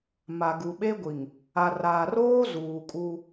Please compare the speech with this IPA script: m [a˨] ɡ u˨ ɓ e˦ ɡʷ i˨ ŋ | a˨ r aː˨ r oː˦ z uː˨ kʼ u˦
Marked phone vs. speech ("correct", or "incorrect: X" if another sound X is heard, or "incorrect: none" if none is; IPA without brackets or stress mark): correct